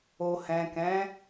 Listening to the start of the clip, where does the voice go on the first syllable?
low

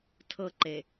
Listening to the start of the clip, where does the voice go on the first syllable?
high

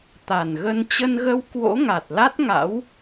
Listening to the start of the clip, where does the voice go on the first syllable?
low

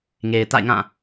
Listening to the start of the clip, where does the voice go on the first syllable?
low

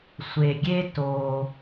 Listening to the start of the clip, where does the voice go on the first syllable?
low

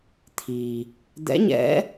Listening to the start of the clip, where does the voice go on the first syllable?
low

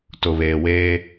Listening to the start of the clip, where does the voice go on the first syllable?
low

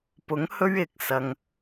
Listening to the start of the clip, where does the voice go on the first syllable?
rising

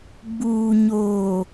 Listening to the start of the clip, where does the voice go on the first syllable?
low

